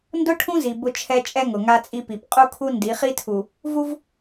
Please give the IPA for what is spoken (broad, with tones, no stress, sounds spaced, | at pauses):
n d ʊ˦ ʈʰ ũ˦ z i˨ b ʊ˦ t͡ʃʰ ɛ˦ t͡ʃʼ ɛ˦ ŋ ʊ˨ ŋ a˦ t͡sʼ i˦ p i˨ p qʼ u˦ kʰ u˦ n d i˨˦ χ i˦ tʰ u˨ | v u˦ v